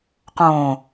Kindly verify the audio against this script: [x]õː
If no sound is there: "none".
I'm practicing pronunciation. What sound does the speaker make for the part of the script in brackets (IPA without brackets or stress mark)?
q